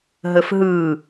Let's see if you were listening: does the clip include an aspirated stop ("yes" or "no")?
no